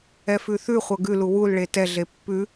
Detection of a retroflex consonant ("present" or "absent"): present